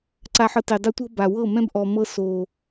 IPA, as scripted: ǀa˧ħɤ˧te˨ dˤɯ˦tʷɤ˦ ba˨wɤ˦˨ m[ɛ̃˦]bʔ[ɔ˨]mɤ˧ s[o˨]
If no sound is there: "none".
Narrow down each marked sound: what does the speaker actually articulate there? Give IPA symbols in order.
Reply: ɛ̃˦, ɔ˨, o˨

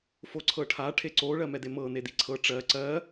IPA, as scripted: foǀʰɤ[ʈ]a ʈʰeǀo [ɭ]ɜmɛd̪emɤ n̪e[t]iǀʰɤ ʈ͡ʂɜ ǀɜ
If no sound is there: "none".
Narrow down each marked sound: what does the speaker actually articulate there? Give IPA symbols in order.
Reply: ʈʰ, ɭ, d̪

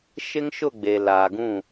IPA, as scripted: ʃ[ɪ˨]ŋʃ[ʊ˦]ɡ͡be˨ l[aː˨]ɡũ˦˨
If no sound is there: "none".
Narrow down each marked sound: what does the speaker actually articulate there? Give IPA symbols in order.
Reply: ɪ˦, ʊ˦˨, aː˨

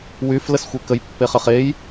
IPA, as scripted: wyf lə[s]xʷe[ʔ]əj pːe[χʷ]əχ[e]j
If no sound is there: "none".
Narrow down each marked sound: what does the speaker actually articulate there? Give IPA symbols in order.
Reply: s, k, χ, e

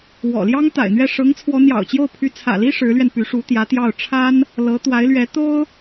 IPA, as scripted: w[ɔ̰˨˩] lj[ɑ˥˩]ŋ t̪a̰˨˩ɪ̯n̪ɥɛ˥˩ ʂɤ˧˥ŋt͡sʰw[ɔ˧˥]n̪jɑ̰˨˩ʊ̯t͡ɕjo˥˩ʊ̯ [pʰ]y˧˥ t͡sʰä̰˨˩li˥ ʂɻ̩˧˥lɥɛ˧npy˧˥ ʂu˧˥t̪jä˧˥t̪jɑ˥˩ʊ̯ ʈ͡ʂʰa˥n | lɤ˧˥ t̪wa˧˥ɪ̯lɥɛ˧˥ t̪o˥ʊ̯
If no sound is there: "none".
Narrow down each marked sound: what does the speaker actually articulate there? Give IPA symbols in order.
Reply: ɔ̰˨˩, ɑ˥, ɔ˧˥, pʰ

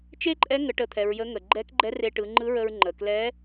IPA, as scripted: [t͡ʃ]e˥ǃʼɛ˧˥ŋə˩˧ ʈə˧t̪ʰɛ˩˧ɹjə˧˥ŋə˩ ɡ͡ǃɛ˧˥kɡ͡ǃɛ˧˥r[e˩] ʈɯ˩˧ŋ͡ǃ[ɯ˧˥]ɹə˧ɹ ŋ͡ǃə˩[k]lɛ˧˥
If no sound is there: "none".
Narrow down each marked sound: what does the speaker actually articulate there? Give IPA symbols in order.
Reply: t͡ʃ, e˧, ɯ˧˥, k

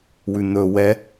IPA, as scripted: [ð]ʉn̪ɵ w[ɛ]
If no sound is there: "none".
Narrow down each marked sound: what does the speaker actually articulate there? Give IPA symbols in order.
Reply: w, ɛ

